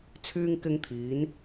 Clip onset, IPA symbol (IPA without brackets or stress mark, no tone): t͡sʰ